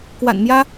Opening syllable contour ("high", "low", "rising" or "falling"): low